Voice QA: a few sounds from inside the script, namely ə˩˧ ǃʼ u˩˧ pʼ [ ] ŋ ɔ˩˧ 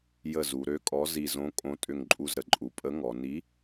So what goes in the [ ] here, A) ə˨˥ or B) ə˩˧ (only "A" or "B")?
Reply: A